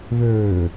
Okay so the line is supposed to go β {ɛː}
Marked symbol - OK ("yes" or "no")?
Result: no